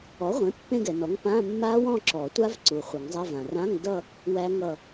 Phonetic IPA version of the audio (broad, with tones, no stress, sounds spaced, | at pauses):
ɔ˩˥ ʁʷ ẽ˩˥ pː ẽ˥˧ ɡ ɛ˩ n ɔ˩˥ ŋ p ã˧˥˧ mː a˦˥ w ɔ̃˥˧ ǁ ɔ˨˩˦ tʷ a˦˥ v ǀ u˩ χʷ ʌ˨˩˦ ŋ zˤ a˧˥˧ v ã˩ r ã˧˥˧ ŋ d ʌ˥˧ | w æ˦˥ ŋ ʌ˥˧